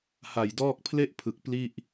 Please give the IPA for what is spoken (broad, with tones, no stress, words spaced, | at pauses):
ha˨˩jdɔː˥˩k̚ pʰle˥˩ʔpʰɯ˨˩k̚ pli˥˩ʔ